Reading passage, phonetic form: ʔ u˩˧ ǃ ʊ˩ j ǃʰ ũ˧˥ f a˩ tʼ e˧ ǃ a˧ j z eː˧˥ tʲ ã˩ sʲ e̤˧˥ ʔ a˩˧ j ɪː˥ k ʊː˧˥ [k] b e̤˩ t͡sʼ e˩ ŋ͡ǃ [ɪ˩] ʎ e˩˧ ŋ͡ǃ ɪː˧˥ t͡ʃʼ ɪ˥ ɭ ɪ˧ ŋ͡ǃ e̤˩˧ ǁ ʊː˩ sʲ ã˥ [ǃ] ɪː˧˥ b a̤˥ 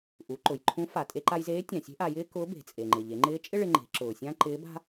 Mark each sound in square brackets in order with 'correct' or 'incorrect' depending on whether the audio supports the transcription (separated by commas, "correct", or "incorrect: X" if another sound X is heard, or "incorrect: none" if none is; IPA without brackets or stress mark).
incorrect: none, correct, correct